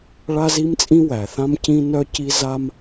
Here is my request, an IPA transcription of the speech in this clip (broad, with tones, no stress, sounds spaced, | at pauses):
ɭ a˥ z i˥ m t͡sʼ ĩ˥ w æ˩ θ ã˥ m c ĩ˥ n œ˥ c i˥ z a˥ m